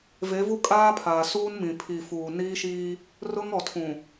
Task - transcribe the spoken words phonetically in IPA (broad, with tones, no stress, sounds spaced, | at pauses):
v e˨˦ v u˦ kʼ aː˦ pʰ aː˨ s uː˦ n m ĩ˨ pʰ i˨ f uː˨ n iː˦ ʃ iː˦ | r ʊ˦ ŋ ɔ˨ tʰ ũ˨